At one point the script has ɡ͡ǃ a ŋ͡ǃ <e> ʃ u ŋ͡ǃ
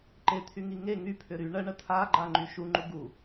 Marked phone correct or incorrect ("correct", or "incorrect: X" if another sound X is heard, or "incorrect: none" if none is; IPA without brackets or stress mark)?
incorrect: y